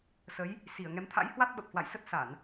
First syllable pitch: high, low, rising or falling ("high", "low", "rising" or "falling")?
rising